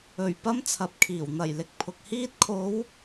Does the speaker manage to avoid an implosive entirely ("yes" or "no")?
yes